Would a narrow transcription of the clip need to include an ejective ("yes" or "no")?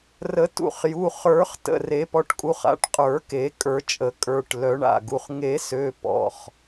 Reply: yes